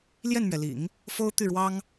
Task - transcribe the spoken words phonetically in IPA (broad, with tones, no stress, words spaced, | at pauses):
ljɛ˥˩nmɥɛ˩lḭ˨˩˦ŋ | fo˥ʊ̯t̪y˥˩ ɻwɑ˥ŋ